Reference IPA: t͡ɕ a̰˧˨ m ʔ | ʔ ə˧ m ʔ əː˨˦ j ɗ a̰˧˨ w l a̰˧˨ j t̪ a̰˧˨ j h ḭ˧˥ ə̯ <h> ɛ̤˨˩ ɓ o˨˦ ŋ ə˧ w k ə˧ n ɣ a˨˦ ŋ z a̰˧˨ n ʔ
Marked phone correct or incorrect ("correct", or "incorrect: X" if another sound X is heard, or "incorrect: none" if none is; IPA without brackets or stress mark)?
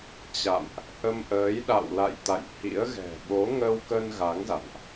incorrect: ɣ